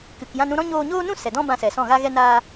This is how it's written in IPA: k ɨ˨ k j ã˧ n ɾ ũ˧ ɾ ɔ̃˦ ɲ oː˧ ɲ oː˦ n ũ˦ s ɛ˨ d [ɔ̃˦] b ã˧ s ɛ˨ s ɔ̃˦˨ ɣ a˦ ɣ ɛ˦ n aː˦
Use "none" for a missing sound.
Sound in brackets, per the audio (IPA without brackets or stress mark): ɔ̃˦